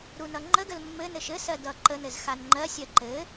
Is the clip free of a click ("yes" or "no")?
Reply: no